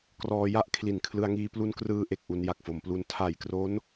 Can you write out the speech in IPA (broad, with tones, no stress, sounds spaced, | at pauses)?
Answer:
k r ɔː˧ j a˥˩ ʔ kʰ l i˨˩ n kʰ l ɯ˧ a̯ ŋ iː˧ p l u˧ n k r ɯː˧ ʔ e˨˩ k̚ ʔ u˧ n j a˨˩ k̚ f o˩˦ m p l u˦˥ n tʰ a˨˩ j k r o˦˥ n